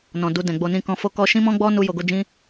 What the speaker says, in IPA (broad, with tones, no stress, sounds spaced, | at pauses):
n ɔ̃˨ d u˧ d ɛ̃˨ ɡ͡b o˧ n ĩ˦ k ɔ̃˦ f o˦ k ɔ˦ ʃ ĩ˦ m ɔ̃˦ ɡ͡b ɔ˦ n u˦ j o˧ ɡ o˦ d͡ʒ ĩ˦